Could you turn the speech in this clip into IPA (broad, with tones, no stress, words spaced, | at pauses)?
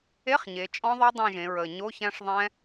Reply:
e˧˥˧χɲe˩˧ t͡ʃʼɔ̃˦˥ðˤɛ˦˥ dˤẽ˦˨ ʒẽ˩˧ɹəː˨˩ ɲo˧˥˧çæ̃˦˥ʂ ðˤɛ̃˦˥